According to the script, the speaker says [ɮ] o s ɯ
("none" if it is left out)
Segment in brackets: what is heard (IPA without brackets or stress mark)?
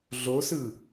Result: ɮ